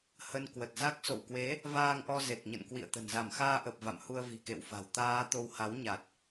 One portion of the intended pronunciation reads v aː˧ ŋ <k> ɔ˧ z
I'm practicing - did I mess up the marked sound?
yes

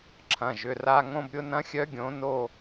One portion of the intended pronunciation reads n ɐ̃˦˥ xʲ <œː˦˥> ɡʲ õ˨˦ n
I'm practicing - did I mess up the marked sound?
yes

